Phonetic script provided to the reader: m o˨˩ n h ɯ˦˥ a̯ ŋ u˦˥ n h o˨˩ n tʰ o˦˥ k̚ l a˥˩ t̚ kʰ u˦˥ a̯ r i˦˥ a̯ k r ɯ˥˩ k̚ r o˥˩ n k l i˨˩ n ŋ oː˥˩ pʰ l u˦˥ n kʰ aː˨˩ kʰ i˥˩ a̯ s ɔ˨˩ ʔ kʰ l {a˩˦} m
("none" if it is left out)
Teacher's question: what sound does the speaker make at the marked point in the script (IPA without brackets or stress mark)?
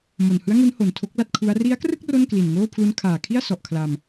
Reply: a˧